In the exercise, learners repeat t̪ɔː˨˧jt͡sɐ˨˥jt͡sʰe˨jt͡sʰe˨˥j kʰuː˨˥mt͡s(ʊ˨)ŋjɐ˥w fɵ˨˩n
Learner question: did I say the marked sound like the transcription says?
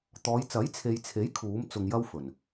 yes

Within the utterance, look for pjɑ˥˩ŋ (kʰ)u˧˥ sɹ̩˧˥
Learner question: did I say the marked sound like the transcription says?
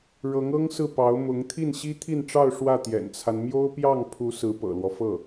no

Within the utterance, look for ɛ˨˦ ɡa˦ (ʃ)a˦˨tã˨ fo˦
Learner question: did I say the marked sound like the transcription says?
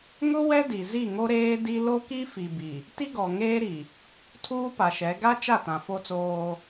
no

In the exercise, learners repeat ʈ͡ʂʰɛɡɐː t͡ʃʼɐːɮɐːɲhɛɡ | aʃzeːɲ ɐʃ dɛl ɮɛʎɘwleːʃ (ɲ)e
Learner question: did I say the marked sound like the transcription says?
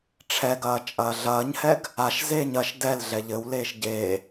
no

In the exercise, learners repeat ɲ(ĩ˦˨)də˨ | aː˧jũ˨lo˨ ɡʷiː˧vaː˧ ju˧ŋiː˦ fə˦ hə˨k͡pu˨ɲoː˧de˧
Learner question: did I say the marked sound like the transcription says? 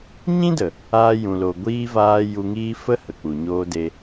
no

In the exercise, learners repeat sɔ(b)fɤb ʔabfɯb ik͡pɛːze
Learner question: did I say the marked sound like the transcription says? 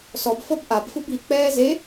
yes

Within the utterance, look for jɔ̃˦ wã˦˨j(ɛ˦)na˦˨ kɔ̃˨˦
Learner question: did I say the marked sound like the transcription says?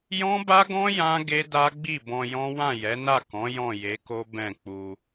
no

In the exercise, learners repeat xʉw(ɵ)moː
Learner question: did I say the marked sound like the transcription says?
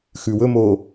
yes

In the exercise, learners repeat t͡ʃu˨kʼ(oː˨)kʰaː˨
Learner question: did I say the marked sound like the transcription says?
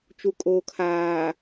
yes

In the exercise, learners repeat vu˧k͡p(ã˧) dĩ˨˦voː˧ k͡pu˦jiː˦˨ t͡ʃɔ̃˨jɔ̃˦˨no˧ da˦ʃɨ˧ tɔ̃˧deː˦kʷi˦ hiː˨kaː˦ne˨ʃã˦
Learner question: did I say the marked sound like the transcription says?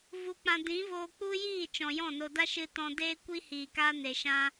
yes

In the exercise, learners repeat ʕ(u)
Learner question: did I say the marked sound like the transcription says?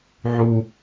yes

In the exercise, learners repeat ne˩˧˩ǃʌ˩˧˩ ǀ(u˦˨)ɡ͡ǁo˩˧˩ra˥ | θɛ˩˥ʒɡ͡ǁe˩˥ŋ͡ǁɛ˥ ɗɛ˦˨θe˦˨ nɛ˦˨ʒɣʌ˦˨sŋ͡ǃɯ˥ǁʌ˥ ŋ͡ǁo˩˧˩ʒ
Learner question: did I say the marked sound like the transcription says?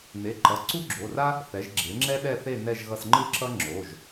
no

